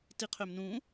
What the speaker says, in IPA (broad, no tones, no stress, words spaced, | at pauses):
tiqʰømnũ